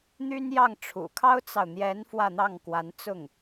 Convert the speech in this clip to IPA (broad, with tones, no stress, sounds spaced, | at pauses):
n̪ y˥ n j ɑ˥˩ ŋ ʈ͡ʂʰ ṵ˨˩ kʰ ɑ˥ ʊ̯ t͡s ɑ˨ ʊ̯ n̪ j ɛ˧˥ n f w ä˥˧ n̪ ɑ˥˩ ŋ k w a˧˥ n t͡s ʊ˥˩ ŋ